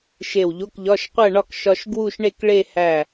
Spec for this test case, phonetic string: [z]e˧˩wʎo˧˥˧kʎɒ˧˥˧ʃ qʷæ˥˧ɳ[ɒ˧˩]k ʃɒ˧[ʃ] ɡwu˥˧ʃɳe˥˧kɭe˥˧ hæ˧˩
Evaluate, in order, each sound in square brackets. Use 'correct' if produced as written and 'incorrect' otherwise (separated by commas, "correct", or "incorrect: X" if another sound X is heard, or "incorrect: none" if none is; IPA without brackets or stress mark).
incorrect: ʃ, incorrect: ɒ˥˧, correct